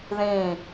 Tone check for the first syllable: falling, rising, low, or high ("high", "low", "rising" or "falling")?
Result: falling